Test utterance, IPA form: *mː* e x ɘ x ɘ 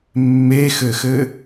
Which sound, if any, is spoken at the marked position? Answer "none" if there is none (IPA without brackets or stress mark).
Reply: mː